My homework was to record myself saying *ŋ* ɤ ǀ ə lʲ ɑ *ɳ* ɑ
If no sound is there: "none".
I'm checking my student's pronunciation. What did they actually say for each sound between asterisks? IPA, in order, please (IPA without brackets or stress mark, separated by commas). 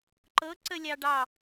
ǃ, ɖ